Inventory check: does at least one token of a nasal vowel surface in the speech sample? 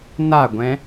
yes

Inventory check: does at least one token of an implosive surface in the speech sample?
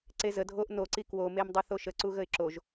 no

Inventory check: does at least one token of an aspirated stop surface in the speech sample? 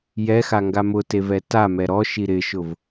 no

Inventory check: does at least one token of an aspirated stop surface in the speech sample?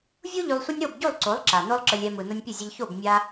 no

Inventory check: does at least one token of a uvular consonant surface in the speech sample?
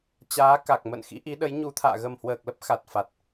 no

